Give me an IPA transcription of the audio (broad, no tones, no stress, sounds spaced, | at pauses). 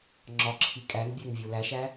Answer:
ŋ͡ǁ ɒ ǁʰ i kʼ æ ŋ bʲ æ ŋ vʲ o l æ ʃ æ